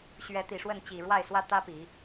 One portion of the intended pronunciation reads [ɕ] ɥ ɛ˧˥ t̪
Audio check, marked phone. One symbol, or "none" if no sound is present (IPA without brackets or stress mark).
ɕ